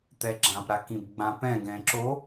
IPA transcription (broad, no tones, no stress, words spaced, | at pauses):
t̪ɛɡ͡ǁãp ɾakĩbɡ͡bãpɛ̃ ɡɛ̃ːǁo